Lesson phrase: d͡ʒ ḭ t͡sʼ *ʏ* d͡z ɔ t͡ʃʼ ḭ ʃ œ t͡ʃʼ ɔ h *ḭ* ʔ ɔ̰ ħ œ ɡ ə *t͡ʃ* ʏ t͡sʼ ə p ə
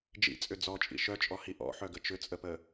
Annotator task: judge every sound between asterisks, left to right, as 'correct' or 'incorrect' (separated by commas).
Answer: correct, incorrect, correct